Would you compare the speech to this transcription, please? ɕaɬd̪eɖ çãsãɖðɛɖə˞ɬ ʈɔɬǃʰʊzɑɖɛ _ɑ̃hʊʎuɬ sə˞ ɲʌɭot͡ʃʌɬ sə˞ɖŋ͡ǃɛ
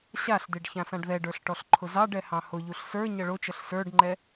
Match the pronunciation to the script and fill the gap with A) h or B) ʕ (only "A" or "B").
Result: A